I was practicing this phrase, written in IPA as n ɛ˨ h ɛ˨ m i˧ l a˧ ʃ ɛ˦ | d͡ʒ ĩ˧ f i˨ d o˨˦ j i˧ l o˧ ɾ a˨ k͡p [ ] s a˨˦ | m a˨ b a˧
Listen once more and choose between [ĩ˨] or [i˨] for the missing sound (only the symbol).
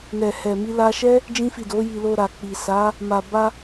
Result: i˨